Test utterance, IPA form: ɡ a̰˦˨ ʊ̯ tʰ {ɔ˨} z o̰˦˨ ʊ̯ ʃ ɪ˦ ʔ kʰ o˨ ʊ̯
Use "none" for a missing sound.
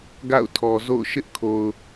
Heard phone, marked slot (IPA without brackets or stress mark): ɔ˨